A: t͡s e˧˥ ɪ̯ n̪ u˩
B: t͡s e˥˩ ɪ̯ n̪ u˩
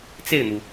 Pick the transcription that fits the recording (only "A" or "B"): B